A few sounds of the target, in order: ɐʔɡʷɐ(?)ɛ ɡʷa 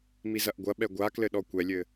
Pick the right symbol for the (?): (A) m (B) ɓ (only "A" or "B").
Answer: B